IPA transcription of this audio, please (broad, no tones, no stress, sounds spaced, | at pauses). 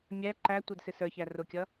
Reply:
mʲ æ ǃ æ tʷ ə˞ d s ɪ s ə˞ ç æ r ʊ kʲ ʌ